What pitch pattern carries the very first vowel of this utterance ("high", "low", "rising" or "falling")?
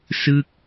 falling